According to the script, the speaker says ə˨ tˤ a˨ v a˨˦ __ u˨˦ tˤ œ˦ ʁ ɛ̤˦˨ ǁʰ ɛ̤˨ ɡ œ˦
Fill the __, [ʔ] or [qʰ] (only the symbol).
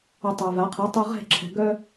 qʰ